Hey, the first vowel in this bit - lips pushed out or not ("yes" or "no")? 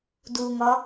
yes